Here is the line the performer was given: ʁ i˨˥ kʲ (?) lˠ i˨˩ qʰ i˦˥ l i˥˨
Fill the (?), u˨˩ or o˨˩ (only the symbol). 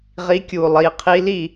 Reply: u˨˩